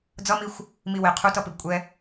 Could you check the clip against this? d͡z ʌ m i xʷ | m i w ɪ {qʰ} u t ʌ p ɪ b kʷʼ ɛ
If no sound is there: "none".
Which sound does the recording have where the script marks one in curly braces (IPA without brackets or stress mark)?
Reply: qʰ